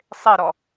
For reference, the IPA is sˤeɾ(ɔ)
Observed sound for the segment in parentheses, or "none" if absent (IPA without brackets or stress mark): ɔ